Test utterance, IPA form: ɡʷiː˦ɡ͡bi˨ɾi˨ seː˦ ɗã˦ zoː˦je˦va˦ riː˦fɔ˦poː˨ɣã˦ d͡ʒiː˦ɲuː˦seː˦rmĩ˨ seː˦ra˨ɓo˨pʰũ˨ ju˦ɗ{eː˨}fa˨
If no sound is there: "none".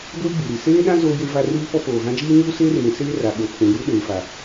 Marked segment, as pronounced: eː˨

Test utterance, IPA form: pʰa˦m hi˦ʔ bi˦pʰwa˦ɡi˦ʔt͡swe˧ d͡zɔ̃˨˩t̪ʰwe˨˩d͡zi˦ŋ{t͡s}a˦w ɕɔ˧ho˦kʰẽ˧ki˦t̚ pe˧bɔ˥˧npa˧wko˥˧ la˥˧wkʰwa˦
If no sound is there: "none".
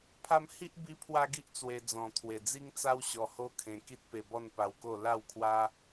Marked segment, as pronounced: t͡s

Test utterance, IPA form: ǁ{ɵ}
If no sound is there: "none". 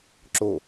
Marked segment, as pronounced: o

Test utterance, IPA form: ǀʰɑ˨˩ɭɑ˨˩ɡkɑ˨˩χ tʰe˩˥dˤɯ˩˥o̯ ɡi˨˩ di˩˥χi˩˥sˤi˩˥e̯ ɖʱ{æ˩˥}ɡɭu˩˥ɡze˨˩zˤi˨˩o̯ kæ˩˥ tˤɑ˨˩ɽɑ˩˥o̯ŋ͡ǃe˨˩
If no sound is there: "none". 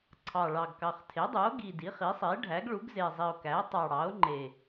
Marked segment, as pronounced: æ˩˥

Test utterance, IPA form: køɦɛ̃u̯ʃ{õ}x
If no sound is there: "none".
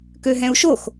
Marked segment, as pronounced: o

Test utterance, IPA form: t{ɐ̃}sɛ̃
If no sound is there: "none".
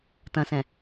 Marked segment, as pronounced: ɐ̃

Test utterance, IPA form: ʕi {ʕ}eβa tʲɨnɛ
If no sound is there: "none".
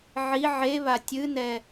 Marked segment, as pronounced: ʕ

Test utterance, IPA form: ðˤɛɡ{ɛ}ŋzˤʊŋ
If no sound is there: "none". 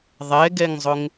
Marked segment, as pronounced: ɛ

